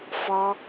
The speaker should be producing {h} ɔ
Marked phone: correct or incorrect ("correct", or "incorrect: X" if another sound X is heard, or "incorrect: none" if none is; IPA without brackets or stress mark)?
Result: incorrect: f